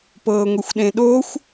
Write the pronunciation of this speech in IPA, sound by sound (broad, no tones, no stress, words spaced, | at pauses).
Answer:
pɤːŋʷexʷɗẽɗoxʷ